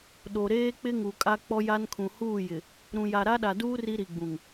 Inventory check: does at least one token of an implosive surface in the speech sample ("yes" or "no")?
yes